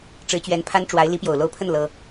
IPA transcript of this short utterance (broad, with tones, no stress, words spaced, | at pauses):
ʈ͡ʂɻ̩˧˥t͡ɕɥɛ˧˥npʰa˥n ʈ͡ʂwa˧˥ɪ̯ li˧˥pjo˨˩ʊ̯lo˧˥ʊ̯pʰə˥˩n lɤ˥